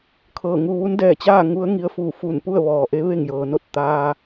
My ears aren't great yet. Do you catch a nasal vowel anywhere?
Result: no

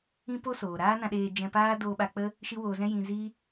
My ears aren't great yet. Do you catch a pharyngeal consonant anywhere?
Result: no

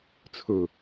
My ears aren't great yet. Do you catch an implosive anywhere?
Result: no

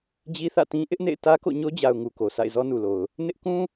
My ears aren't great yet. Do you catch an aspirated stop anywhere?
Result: no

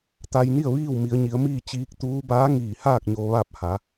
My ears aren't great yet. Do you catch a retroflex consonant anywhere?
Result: no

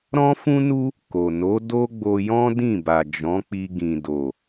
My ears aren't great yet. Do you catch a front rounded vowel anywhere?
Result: no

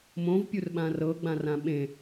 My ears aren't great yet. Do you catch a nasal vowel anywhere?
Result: yes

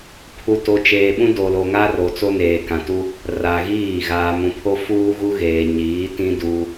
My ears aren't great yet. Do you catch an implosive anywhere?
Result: yes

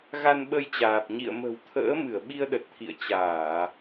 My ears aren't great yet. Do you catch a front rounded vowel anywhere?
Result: no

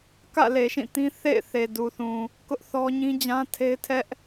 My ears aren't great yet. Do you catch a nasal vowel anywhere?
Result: yes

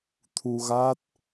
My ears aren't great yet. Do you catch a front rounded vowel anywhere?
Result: no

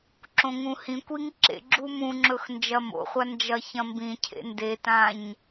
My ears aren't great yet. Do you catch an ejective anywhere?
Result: no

